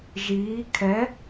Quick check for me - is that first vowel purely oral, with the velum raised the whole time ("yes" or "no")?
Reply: yes